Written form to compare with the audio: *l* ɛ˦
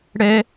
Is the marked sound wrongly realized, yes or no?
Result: yes